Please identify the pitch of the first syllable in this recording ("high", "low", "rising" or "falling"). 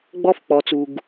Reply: high